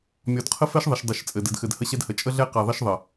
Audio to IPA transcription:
mʲ ɔ˨ d qʰ ə˦ f ɛ˦ ʃ ðˤ ə˨ ʃ dˤ ɘ˨ ʃ t͡sʼ ɘ˨ d ɘ˨ d x ɘ˨ d h ə˦ ɕ ɛ˦ d h ə˨˦ t͡ʃʼ ə˦ ɮ ɛ˦ q ɛ˨ ðˤ ə˦ ʃ ðˤ ə˨

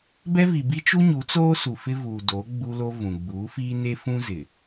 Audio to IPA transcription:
b ɛ˦ v i˨ b i˦ t͡ʃ u˦ ɲ u˨˦ t͡s oː˦ s u˨ f ɪ˦ v uː˨ d o˨˦ ɡ͡b u˦ l o˦ v ũ˨ ɡ͡b uː˨˦ f iː˦ n e˦ f ũ˦ z ɪ˨

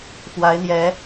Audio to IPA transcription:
f w a˨˦ ɪ̯ n̪ j ɛ˨˦

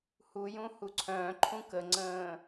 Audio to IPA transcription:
h u j ũ h u ǀʰ œ̃ː ǃʰ ũ k ə ŋ͡ǀ ə̃ː

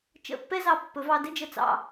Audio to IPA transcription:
t͡ʃ ə̰˧˩ pː ɛ˥ z ɑ˧˩ pː ɵ˩˧ v ɑ˧ d ɘ˥ d͡ʒ ə˧ t͡s ɑ̰˧˩

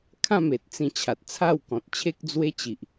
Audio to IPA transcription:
kʰ ã˥˧ m e˨ t̚ t͡s ĩ˧ t͡ɕʰ a˨ t̚ t͡sʰ a˥˧ w k ɔ̃˨ t̚ t͡ɕʰ e˦ k̚ d͡z w e˦ t͡ɕ i˨ ʔ

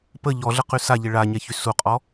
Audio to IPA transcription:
p ə ʎ ɔ ɮ ə q y s a ʎ e ɭ a ɲ ɛ ç y s u qʼ ɔ

